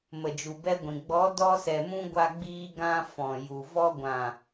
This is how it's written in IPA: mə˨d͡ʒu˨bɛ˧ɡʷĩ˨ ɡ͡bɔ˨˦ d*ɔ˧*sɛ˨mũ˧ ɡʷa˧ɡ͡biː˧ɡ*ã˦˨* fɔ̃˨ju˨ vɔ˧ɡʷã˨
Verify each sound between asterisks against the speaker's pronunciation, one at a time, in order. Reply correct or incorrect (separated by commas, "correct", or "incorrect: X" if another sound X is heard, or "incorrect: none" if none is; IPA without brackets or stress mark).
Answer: correct, incorrect: ã˧